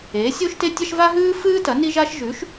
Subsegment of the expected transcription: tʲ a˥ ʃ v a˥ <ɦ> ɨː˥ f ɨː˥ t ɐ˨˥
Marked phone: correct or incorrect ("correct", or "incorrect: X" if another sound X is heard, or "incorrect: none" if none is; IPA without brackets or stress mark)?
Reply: correct